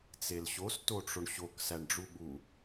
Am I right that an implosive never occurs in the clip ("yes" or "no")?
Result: no